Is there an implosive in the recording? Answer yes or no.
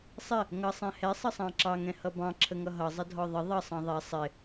no